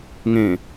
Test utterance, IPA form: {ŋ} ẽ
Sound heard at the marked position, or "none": ŋ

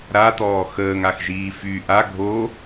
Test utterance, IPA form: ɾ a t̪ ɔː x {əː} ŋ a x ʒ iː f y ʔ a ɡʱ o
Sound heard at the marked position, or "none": əː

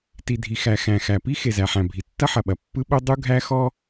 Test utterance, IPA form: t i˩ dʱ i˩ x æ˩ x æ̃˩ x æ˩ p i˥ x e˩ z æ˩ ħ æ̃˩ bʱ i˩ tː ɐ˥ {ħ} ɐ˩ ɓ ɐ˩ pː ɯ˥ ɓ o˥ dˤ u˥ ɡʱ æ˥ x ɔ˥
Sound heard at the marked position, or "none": ħ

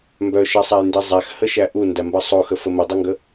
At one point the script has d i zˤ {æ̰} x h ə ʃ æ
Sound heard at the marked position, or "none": æ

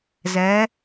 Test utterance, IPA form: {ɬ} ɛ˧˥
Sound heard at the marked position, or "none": z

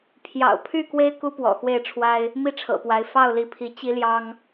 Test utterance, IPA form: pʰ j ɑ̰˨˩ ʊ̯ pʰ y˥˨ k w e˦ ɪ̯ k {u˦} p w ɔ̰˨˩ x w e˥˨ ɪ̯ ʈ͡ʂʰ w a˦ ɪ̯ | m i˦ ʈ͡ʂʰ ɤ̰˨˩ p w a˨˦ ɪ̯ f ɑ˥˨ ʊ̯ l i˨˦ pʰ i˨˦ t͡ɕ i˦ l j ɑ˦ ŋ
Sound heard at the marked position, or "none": u˦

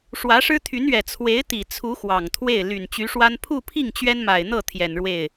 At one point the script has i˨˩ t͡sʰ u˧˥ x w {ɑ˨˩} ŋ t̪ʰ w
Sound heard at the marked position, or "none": ɑ˨˩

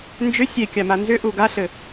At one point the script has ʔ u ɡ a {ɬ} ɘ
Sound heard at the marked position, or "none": ɬ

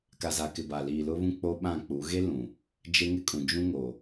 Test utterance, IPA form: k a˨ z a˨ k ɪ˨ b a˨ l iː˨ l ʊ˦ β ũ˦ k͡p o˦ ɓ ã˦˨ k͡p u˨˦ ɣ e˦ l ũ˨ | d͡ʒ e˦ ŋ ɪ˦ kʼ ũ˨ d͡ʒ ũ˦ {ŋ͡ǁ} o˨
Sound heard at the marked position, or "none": ŋ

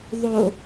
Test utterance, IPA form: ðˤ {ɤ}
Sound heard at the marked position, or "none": o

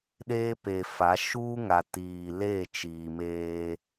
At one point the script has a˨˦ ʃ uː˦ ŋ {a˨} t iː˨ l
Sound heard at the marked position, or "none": a˨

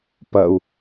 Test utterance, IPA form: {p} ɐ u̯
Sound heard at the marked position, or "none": p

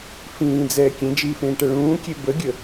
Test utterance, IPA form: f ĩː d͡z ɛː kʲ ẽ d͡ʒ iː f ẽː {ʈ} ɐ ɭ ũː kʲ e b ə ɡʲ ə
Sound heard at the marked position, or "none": ʈ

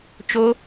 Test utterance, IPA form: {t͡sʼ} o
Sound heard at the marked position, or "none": t͡ʃ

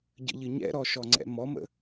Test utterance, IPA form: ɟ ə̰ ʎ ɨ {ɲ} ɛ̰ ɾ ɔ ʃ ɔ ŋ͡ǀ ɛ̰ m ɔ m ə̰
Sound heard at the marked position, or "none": ɲ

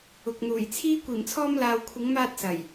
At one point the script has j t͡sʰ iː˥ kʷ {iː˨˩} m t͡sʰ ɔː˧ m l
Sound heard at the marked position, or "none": iː˨˩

